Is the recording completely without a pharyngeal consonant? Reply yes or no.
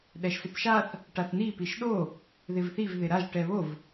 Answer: yes